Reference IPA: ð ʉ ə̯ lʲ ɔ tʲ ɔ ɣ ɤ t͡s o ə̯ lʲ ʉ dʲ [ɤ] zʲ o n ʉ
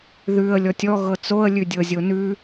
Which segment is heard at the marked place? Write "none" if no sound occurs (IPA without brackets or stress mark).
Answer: ɤ